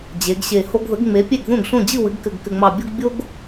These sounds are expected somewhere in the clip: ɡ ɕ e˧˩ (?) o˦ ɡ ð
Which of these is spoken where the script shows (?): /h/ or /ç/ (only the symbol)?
h